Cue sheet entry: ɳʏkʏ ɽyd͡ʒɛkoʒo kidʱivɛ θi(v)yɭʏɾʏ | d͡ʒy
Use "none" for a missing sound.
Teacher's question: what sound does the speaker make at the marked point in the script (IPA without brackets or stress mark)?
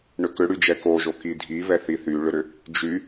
θ